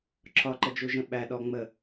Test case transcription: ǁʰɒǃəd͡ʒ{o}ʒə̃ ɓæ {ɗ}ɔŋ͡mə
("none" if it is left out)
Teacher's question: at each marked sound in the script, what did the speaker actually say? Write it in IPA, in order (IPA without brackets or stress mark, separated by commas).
u, ɗ